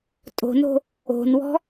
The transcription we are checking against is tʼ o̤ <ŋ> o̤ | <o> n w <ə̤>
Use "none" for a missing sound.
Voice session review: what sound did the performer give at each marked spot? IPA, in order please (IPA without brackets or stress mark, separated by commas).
n, o̤, ɔ̤